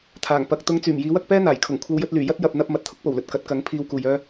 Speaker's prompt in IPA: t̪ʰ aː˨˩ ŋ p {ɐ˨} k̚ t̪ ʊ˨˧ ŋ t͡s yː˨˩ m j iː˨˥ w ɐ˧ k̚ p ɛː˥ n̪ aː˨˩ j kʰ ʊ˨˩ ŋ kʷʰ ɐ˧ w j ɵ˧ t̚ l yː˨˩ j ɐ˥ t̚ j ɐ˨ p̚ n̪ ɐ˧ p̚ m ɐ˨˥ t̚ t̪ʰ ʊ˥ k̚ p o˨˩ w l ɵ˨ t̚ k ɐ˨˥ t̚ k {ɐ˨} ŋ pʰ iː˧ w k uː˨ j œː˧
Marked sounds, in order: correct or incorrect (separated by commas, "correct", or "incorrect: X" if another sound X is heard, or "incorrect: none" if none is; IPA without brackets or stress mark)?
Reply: correct, incorrect: ɐ˨˥